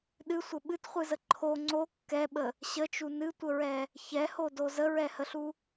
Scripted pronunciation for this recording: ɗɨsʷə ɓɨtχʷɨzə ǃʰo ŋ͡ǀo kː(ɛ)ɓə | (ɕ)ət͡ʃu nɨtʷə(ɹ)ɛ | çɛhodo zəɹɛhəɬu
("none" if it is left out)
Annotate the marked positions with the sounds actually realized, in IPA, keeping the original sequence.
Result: ɛ, ɕ, ɹ

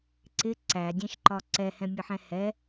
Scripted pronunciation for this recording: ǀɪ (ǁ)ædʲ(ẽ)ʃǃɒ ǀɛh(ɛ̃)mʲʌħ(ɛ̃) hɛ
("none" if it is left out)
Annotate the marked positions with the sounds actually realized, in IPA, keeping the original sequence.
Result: ǀ, ɛ̃, ɛ̃, ɛ̃

